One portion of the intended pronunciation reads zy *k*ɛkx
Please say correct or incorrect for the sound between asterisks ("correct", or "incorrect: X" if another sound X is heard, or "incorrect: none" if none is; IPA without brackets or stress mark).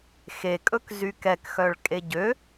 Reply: correct